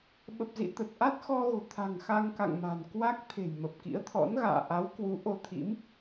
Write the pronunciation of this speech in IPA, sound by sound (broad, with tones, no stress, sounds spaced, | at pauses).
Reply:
ɓ ə˨˩ p̚ z ḭ˧˨ t̪ ə˨˩ t̚ ʔ a˦˥ t̚ x ɔ˧ ɣ o̤˨˩ t̪ʰ a̤˨˩ ŋ x a˧ ŋ k a̰˧˨ ŋ m a̤˨˩ n k w a˦˥ k̚ t̪ʰ e̤˨˩ j m ə˨˩ p̚ k ḭ˧˥ ə̯ t̪ʰ ɔ̰˧˥ n ɣ a̰ː˧˨ ʔ a˨˦ w k w u˨˦ ʔ o˧ t̪ʰ ḭ˧˥ m